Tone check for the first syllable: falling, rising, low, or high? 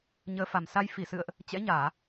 rising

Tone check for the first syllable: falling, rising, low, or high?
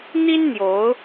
high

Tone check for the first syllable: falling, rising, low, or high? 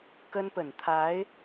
high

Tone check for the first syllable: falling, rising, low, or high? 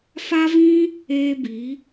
high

